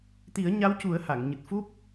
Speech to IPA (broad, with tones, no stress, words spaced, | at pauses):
t̪i˨˩˦ə̯ɲa˧˥wcu˨˩˦ə̯ ha˨˩˨ŋɲɨ˨˩t̚fu˦˥p̚